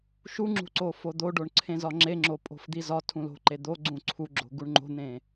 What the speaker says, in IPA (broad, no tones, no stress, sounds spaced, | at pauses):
ʃ u ŋ͡ǁ ṳ ǀ o f o d̪ o ɖ o ɳ ǀʰ ẽ z ɒ ŋ͡ǁ e ŋ͡ǁ o pʼ o̤ f d̪ i z ɒ tʰ ũ l o̤ ǃ e d̪ o ɡ͡ǀ ũ ǀʰ u ɡ͡ǁ o̤ ɡ u ɳ ŋ͡ǃ o̤ n̪ ẽ